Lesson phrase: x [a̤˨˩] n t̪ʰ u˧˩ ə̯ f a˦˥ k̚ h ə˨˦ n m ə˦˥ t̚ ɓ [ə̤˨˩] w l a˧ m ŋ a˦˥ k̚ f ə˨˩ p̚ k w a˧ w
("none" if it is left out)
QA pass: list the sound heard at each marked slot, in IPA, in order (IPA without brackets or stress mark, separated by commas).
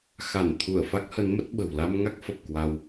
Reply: a˧˩, ə̤˨˩